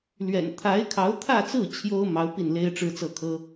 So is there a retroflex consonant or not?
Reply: yes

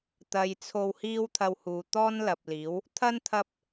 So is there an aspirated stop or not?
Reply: yes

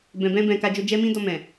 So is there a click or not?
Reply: no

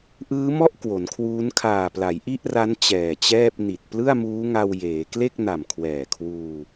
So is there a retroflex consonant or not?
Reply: no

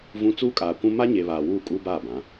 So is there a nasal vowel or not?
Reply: yes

